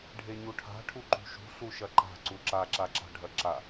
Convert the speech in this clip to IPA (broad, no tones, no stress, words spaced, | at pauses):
ɖʱeɲuʈʰa̤ ʈʰuǃṳʃṳ ɬuʃɐǃa̤ ǀuǁa ǁaǁa̤ɖʱɐǁa